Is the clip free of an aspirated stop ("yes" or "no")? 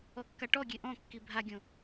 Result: yes